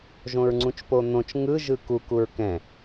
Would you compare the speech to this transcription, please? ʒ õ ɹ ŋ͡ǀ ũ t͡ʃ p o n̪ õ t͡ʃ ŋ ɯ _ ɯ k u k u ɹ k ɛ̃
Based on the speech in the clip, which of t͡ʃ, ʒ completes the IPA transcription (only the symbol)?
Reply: ʒ